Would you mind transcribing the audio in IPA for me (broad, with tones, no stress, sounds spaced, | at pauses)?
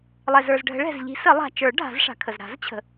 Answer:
lˠ ɛ˩ z ə˞˩ z ɖʱ ə̤˨˩˦ ɭ ɛ̤˩ z ʎ i̤˨˩˦ s ə˨˩˦ lˠ a̤˩ t͡ʃ ə˞˨˩˦ ɖʱ a̤˨˩˦ z ʂ a̤˩ kʰ ə˩ z ɾ a̤˨˩˦ z t͡ɕʰ ə̤˩